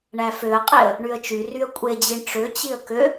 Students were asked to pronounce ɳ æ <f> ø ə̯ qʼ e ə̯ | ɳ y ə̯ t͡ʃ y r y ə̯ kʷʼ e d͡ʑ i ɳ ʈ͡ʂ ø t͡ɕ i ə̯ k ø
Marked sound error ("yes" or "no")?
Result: no